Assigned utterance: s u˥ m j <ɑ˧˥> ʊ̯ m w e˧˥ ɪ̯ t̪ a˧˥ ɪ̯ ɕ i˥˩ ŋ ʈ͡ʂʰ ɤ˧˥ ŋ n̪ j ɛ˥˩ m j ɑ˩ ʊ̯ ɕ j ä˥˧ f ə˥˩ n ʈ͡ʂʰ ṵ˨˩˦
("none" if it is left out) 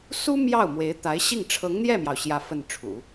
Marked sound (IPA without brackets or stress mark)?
ɑ˥˩